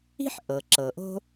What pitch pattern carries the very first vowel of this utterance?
high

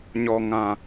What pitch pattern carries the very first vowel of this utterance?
low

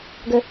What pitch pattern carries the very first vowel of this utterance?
high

